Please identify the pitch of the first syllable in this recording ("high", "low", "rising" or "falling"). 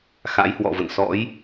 rising